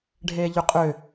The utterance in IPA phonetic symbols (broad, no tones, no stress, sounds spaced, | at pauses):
ɖʱ eː ʎ ø qʼ ø